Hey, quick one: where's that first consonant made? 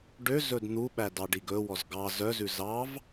retroflex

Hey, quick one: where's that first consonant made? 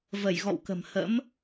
lips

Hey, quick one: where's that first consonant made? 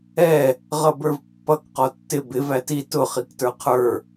uvula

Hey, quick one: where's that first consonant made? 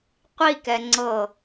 uvula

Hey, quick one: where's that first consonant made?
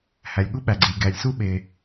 throat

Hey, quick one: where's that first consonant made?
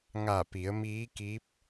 velum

